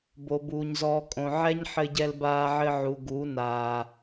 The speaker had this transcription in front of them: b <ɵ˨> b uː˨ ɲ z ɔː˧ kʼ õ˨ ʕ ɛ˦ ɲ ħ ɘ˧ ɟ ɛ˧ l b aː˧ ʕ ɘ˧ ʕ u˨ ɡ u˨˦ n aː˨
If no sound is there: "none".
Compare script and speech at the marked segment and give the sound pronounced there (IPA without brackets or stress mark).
o˨